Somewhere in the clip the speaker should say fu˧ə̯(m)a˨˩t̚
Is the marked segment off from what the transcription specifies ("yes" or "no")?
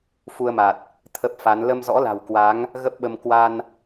no